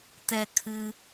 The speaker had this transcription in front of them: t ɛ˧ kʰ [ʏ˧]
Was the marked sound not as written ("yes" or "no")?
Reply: yes